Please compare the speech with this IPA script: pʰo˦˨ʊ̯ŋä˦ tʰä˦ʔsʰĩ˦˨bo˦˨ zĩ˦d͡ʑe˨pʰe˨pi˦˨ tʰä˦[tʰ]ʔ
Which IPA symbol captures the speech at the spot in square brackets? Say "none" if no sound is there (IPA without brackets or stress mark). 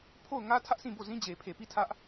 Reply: none